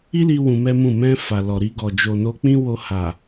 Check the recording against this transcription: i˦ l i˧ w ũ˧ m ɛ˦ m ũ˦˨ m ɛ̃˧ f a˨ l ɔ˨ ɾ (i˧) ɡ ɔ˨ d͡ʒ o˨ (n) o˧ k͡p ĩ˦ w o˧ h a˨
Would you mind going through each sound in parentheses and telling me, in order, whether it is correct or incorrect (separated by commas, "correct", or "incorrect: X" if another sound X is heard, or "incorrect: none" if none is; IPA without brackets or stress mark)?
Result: correct, correct